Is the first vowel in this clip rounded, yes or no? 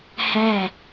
no